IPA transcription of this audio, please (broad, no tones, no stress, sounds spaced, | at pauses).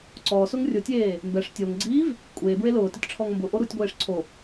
ǀ ɔ s ʊ ŋ rʲ ʊ tʲ eː | m b ɛ ʂ tʲ o ŋ ɡ͡ǀ iː v | kʷʼ eː b ɹ e l ʊː t ɪ tʲ ʈ͡ʂʰ ɔ ŋ m b ʊ ʔ o ɾ u tʲ ɡʷ eː ʂ ǀʰ o